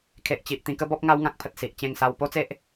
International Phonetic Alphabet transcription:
kʰ e˨ ʔ t͡ɕ i˨ ʔ t̪ ĩ˧ k ə˦ b ɔ˦ p̚ ŋ a˦ w ŋ ã˦ k̚ pʰ ə˨ t̚ s i˨ ʔ t͡ɕ ẽ˧ ŋ s a˧ w p o˦ t͡s e˦ ʔ

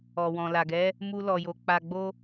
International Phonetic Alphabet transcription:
ɔ˨ w ɔ̃˨ l a˨ ɡ ɛ˨˦ | m u˦ l ɔ˧ j o˧ k͡p a˧ ɡ͡b o˦

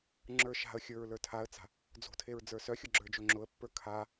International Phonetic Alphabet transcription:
ŋ͡ǁ ə˞ ʃ a̤ ə̯ xʲ ə˞ ɹ l ə˞ tʰ a ə̯ t͡s a̤ | d͡z o̤ tʰ e ɹ d͡z ə˞ s œ xʲ ʊ ɡ͡ǁ ə˞ d͡ʒ o ŋ͡ǁ ʊ ə̯ pː ə˞ kʰ a

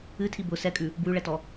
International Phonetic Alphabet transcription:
ɨ tʰ i b ʊ s ɛ kʼ ʉ | b w ʉ ɭ ɛ t ɔ

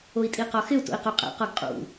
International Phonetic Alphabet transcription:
o i̯ tʼ i q ɒ x ɪ u̯ t o̰ i̯ q o qʼ ɛ̰ q ɒ ɡ qʼ ṵ

